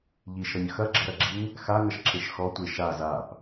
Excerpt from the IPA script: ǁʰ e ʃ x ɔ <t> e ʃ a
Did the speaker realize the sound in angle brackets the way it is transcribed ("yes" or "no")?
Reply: no